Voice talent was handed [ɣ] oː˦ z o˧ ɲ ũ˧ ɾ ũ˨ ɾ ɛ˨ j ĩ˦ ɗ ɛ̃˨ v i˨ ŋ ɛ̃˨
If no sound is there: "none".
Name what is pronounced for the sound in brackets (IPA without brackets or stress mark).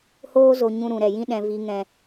h